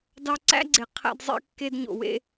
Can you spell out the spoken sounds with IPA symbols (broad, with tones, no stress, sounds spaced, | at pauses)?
d ɑ˧ ǀ æ̰˥ ɡ͡ǀ e˩ qʰ æ̰˧ d zˤ ḛ˧ kː e˧ d ɲ o̰˩ w ḛ˧